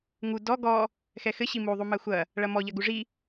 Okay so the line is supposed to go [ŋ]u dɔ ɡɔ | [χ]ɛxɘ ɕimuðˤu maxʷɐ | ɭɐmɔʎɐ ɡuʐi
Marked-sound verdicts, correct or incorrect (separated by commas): correct, incorrect